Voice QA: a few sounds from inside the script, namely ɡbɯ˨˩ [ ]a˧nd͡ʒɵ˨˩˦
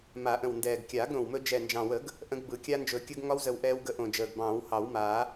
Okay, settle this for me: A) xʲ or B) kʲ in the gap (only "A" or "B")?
B